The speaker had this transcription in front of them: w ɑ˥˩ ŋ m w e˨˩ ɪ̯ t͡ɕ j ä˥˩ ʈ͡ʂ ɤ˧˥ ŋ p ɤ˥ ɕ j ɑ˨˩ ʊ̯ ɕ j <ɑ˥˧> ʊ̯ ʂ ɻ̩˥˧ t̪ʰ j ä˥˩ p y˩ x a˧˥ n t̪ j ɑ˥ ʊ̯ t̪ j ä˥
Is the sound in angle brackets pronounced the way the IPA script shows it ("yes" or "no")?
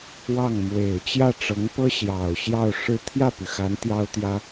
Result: yes